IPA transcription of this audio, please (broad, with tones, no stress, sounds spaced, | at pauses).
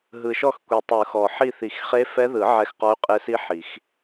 ɦ ɯ˨˩ ʃ ɔ˦˨ x kʷ i˨˩ tˤ ɯ˨˩˦ x ɔ˨˩ ħ i˦˨ θ i˨˩˦ x χ e˦˥ f ɛ˦˥ ð ɯ˨˩˦ ʕ ɛ˦˨ x q ɔ˦˥ y̯ qʼ e˦˥ s i˦˥ ħ i˨˩˦ x